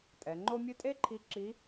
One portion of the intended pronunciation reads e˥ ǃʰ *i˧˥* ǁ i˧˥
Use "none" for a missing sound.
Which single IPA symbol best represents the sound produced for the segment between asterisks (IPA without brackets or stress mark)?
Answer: i˧˥